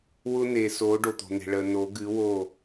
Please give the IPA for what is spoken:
wʊ˦n̪e˨so˨˦ ɖo˨t̪o̤˨n̪e̤˨ ɭə˨no˨˦ɡɨ˨˦wo˦˨

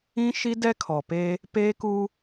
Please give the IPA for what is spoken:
ĩ˦ ʃi˦dɛ˦kʰɔ˨pe˦ | peː˦ku˦

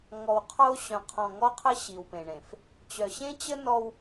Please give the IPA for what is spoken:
ŋɔ˨wqʰo˦ ɕœ̃˨qʰɔ̃˨ŋɔ˦qʰə˦ ɕi˨wpẽ˨ɳẽ˨f | t͡ɕœ˨ ɕẽ˦t͡ɕə˦ nɔ˦w

